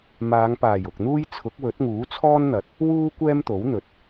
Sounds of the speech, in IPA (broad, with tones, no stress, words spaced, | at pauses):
maː˨˧ŋpaː˨˩j ʊ˨k̚n̪uː˥j t͡sʰʊ˨˥k̚wɵ˨˥t̚ŋuː˨˥ t͡sʰɔː˥nn̪ɐ˨˥t̚ | wuː˥ kʷɛː˥mt̪o˨˥wn̪ɵ˨˥t̚